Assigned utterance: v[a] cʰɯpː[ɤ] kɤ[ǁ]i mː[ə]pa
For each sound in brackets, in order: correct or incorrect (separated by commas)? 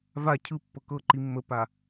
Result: correct, correct, incorrect, correct